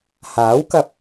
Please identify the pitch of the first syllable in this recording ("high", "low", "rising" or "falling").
rising